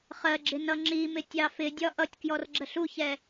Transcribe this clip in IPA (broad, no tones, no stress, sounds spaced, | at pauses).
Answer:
χ ɜ ɡ͡ǁ ɪ n ʌ ŋ͡ǁ i m ɪ tʲ ɑ f ɪ dʲ ɒ ʔ ʌ tʲ k j ɔ r ɡ͡ǁ ə ɬ u ç ɛ